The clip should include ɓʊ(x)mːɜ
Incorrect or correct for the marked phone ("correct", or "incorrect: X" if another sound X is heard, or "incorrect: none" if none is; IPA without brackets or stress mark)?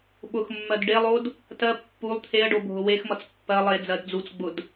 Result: correct